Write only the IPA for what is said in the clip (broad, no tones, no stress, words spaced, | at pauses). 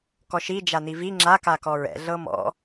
kɔʃi d͡ʒanivi ŋ͡ǁa kakɔɹɛ̰ ɮɤmɔ̰